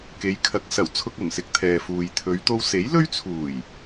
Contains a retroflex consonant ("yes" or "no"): no